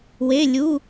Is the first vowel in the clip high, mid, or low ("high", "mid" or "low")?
mid